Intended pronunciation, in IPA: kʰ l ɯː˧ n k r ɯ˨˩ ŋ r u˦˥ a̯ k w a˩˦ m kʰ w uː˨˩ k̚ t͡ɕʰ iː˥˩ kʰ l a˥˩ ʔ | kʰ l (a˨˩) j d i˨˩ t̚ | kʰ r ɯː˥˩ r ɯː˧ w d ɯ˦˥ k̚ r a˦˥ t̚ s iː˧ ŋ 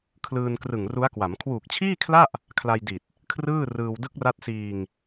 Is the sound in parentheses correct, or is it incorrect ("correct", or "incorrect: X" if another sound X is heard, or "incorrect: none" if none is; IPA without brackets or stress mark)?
incorrect: a˧